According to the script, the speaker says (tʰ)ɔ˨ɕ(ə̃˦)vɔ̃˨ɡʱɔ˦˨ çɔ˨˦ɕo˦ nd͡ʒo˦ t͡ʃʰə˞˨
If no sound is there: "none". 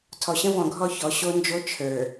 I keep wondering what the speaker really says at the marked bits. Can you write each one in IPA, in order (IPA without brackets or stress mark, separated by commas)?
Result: tʰ, ə̃˦